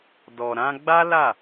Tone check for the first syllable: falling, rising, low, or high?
low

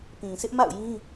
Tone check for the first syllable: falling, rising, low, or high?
low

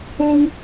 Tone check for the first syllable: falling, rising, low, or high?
high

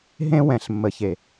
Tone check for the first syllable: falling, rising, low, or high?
high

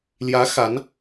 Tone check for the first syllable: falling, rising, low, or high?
rising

